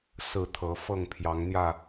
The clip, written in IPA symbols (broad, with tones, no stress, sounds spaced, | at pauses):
s ɹ̩˥˨ t̪ʰ ɤ˨˦ f ɤ˥˨ ŋ pʰ j ɑ˨˦ ŋ n̪ j ä˥˨